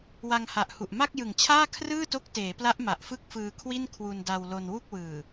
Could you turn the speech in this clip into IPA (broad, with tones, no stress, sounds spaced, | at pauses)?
w a˧ ŋ h a˨˩ ʔ h u˨˩ ʔ m a˥˩ k̚ j ɯ˨˩ ŋ t͡ɕʰ aː˥˩ kʰ r ɯː˥˩ t o˦˥ k̚ t eː˩˦ p l a˦˥ ʔ m a˨˩ ʔ f ɯ˥˩ k̚ f ɯː˧ kʰ w i˥˩ n kʰ w u˧ n d a˧ w l o˧ n w u˥˩ k̚ w ɯː˨˩